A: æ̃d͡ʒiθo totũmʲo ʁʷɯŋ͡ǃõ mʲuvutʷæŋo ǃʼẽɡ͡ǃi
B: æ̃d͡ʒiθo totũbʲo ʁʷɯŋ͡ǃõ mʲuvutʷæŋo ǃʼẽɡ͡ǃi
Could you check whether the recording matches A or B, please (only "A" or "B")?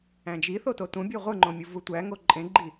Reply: B